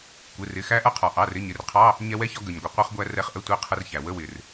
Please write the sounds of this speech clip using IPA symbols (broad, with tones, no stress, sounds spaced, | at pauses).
kʷ ɪ˩˧˩ r ɪ˩˧˩ x æ˧ ʔ ʌ˧ qʰ ɒ˩ ʔ ɑ˩˧˩ r ɪ˧˥˧ ɲ ɪ˩˧˩ r qʰ ɑ˧˥˧ | ɲ ɛ˧ w ɛ˧˥˧ ç ɒ˧ ɡ ə˩ ɲ ɡʷ ɪ˩ qʷ ɛ˧ χ ɡʷ æ˧ r ɛ˧˥˧ χ ʔ ə˧˥˧ tʷ ɛ˧˥˧ qʰ ə˧ r ç æ˩ w ə˧˥˧ w ɪ˩ r